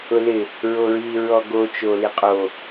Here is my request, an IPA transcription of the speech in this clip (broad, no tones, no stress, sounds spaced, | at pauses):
ʊ l ɪ | ɹ o ɹ i ɹ ɔ ɡ o t͡ʃ o l i qʼ o